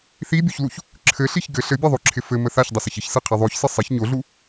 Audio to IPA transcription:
θ i bʲ u ç l u ç | ǁʰ ɘ ɬ i ç ɡ ɘ ɬ ɘ bʲ ɛ ðˤ o ǁʰ ɪ f ɘ m ə θ a ç dˤ ɪ s ə ç ɪ ç s ɯ qʰ ɛ ðˤ o ç s ɘ sˤ ɪ ç ɲ o ɮ u

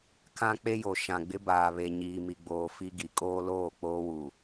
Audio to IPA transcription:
kʰ ã˦ k͡p e˦ j o˨ ʃ ã˨ ɡ͡b ɪ˦ b aː˨ β e˨ ɲ iː˨ m i˨ ɡ͡b oː˨ f i˦ ɡ i˨ kʼ oː˦ l oː˦˨ k͡p oː˦ w u˨

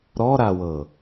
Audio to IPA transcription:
ɾ ɔ ɾ a w ɤ

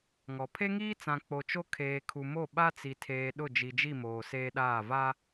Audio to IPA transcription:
ŋ ɔ˨ pʰ e˦ ŋ iː˦ t͡s ã˨ k͡p o˨ t͡ʃ o˦ kʰ eː˨ kʰ u˨ m o˦˨ ɓ a˦ t͡s i˨ tʰ eː˨ ɗ ʊ˦˨ d͡ʒ i˨ d͡ʒ i˦˨ m oː˨ s eː˦ ɗ aː˦˨ v a˦

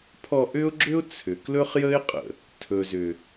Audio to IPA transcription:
pʰ ɔ˧ ʔ ʏ˦ ʊ̯ ɡ͡ǁ ʏ˦ ʊ̯ t͡sʰ ʏ˨ k l ɵ˦ χ j ə˦ ɪ̯ qʼ ə̰˨ | tʰ ɵ˨ z ʏ˨

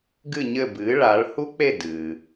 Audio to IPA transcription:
ɡ ɨ˦˨ ɲ ɘ˦˨ b ɨː˩˧ ɭ a˩˧ ɭ h u˦˥ k͡p e˦˨ d ɨ˩

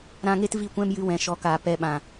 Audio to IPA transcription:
ɾ ã˧ ŋ e˦ t v i˦˨ kʷ ɛ̃˦ m j ɨ˧ w ɛ̃˨ ʃ ɔ˨˦ k aː˨ p ɛ˧ ɓ ã˨

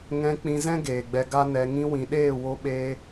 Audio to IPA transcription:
ŋ ɛ̃˧ k͡p ĩ˧ z ɛ̃˦ ɡ eː˨ ɡ͡b ɛ˧ ɡ a˦ n ɛ˧ ŋ ĩ˧ w ĩ˨ ɗ eː˦˨ w o˦ ɓ eː˦

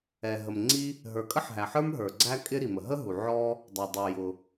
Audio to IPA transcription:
ɛ˩ ɦ ə˩ m ŋ͡ǀ i˥ | ɦ ə˞˩ kʼ ə˥ ħ ɦ æ˩ ħ ə˞˥ m ɦ ə˞˩ ɡ͡ǀ æ˥ kʼ ɪ˥ ɾ i˩ m ə˩ ɦ ə˥ ɦ u˩ ʕ ɔ˥ | dˤ ɛ˩ dˤ u˩ j ʊ˩

